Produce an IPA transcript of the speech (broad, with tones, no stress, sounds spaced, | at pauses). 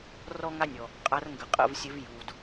r ɔ˦ ŋ a˦ nʲ ɔ˩ | qʼ a˨˦ r ŋ ɡ ə˩ qʼ ə̰˥˩ v sʲ ɘ˨˦ v j u˩ d